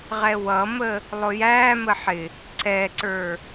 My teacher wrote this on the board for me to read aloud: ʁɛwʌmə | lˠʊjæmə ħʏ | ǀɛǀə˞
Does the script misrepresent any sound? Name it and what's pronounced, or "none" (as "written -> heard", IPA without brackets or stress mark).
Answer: ʏ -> ɪ